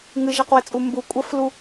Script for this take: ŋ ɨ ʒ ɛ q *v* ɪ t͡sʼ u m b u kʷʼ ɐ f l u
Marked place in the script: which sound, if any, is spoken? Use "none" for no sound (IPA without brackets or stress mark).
w